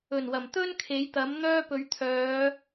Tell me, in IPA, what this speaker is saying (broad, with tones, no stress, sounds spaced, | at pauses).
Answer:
ɵ˨˩ n w ɐ˨˩ m t̪ ɵ˥ n kʰ e˨˥ j t̪ ɐ˨˥ m n̪ œː˥ p ɵ˨˧ ɥ t̪ʰ œː˨˧